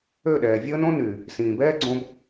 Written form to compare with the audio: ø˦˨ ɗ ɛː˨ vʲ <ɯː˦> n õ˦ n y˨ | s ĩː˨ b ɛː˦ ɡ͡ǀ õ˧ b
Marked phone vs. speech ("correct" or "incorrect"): incorrect